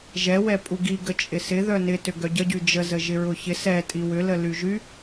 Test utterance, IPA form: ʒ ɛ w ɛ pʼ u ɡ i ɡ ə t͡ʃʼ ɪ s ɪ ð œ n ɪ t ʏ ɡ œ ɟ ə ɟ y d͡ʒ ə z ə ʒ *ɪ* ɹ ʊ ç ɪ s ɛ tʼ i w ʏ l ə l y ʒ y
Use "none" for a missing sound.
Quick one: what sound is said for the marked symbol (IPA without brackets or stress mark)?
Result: ɪ